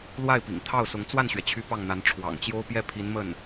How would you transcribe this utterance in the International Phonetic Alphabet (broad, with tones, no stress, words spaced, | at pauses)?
lwa˥˩ɪ̯pḭ˨˩ŋt̪ʰɑ˥˩ʊ̯sʊ˧˥ŋ t͡swa˥˩nɕɥɛ˩t͡ɕʰy˧˥ pɑ˥˩ŋn̪a˧˥n ʈ͡ʂʰwɑ̰˨˩ŋt͡ɕjo˥ʊ̯pjɛ˥ pʰi˧˥nmə˥˩n